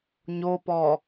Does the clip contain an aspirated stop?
no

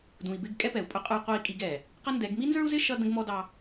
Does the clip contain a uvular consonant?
yes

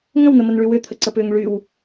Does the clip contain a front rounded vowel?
yes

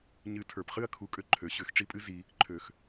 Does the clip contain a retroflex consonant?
yes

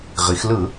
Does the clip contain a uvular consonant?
yes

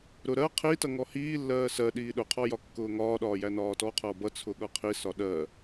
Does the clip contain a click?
no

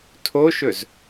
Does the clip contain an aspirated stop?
yes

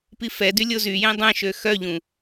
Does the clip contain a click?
no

